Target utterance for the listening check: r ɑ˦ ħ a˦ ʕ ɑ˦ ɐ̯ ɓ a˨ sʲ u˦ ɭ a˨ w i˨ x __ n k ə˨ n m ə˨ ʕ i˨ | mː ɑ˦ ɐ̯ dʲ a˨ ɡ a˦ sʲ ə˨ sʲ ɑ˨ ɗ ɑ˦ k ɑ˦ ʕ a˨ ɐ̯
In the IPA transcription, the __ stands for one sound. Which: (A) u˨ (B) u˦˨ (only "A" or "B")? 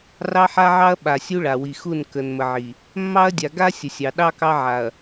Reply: B